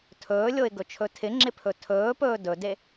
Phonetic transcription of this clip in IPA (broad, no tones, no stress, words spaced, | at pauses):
tʰɵːlʲoɪ̯ɡɵt͡ʃʰɵ tʰɪŋ͡ǁɪpʰɵ tʰɵːpɵː dɵde